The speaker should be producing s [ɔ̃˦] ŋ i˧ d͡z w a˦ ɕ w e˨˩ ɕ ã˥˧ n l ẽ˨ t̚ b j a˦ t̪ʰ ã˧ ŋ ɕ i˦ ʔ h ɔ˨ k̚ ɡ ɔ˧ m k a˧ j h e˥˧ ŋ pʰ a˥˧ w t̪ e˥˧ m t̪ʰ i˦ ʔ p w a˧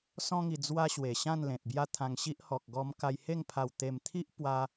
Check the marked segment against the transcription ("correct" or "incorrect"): correct